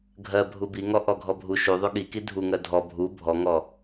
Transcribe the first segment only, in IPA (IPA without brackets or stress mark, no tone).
ɡʱ